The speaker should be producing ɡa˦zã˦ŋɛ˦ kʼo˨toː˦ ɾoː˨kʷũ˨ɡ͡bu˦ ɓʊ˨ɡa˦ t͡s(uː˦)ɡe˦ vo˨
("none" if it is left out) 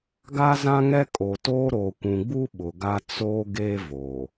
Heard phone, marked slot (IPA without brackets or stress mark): oː˦